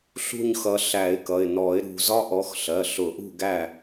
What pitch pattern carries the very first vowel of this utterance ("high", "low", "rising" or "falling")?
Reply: falling